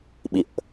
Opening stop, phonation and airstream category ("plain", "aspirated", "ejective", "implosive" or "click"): implosive